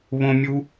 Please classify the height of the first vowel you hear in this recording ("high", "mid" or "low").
mid